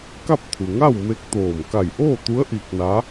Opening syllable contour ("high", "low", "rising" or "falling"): falling